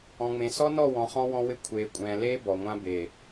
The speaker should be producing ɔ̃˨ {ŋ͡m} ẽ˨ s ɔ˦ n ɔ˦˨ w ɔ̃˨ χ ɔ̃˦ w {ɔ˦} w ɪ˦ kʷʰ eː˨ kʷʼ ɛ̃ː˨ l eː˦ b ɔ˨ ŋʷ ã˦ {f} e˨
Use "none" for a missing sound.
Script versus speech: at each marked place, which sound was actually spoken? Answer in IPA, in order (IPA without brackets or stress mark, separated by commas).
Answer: ŋ͡m, ɔ̃˦, b